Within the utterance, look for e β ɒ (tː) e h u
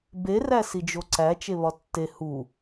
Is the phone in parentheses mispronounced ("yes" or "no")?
no